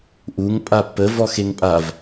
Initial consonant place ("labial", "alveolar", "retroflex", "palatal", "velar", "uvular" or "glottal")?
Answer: glottal